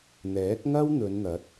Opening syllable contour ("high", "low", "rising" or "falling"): rising